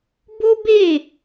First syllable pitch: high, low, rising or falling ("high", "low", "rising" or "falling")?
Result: high